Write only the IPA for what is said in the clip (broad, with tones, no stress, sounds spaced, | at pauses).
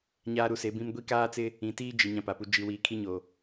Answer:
ɲ aː˦ ɾ u˦ s e˨˦ b ĩ˦ m ɡʷ i˦ k aː˦ t͡s ɪ˦ | ĩ˨ t iː˦ d͡ʒ i˨ ɲ ã˦ p a˨ p u˦ d͡ʒ i˦ w iː˦ kʰ i˦ ɲ o˨